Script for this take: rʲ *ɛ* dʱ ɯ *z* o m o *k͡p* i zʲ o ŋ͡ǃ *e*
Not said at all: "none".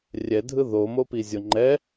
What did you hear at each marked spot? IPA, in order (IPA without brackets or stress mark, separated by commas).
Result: ɛ, ð, p, ɛ